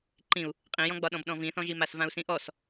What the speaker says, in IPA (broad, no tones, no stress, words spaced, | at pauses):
ǃĩu̯ | qʼĩjɔ̃ɡ͡bɒɗɔ̃b ɗɔ̃vĩθɔ̃ʒi masvãu̯sĩʔɔs